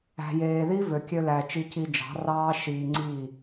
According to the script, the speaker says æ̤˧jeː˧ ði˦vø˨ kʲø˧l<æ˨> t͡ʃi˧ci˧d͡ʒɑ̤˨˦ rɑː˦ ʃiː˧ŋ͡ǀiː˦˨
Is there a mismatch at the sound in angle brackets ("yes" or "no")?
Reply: no